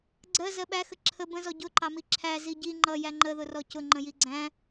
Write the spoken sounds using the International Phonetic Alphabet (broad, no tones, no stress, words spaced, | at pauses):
ɡ͡ǀɜ zɜɓæxə ǁʰə bə̃zɔ ɟʊ ǃɑmiǁʰæ ziɟi ŋ͡ǃʌ jæŋ͡ǃəðʊ rɔcʊ ŋ͡ǃə̃jiɡ͡ǀæ̃